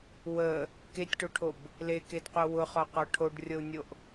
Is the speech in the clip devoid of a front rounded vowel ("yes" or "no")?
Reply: yes